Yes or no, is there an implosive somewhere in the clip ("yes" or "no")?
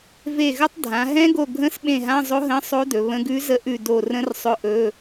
yes